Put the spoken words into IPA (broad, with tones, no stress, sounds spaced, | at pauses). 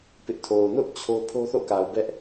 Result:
p ɪ˦ ʔ tʰ o˨ ʊ̯ n ʊ˦ ʔ t͡ɕʰ o˦ pʰ o˦ θ o̰˦˨ k a˨ ʊ̯ b ɛ˦ ʔ